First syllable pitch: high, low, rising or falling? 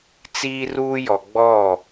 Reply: high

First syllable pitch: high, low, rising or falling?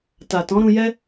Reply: low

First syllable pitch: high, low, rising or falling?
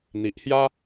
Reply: low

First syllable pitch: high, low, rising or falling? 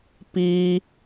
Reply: high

